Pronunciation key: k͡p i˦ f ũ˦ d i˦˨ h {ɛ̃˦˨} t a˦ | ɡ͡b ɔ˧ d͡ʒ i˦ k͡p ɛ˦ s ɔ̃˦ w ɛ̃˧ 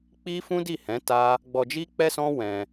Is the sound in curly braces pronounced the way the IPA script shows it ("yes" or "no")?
no